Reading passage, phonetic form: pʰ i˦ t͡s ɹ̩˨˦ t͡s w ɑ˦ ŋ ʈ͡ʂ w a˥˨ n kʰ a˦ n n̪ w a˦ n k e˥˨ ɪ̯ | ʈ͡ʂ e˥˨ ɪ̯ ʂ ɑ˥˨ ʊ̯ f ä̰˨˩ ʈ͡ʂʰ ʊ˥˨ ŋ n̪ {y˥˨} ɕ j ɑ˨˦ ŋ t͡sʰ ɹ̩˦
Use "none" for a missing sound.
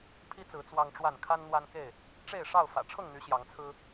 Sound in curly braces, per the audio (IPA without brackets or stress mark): y˨˦